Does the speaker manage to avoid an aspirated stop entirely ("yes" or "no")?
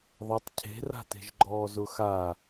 no